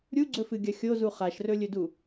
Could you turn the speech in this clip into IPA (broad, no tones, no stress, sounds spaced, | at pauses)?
ɾʲ u ɡ͡ǀ ɵ f ɨ ɡʲ ɐ xʲ o z u χ a ʃ r ɵ lʲ ɵ d u